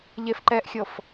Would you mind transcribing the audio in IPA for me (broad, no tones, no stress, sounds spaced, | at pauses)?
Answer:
ʎ e f ǃ ɛ ʔ xʲ ɤ f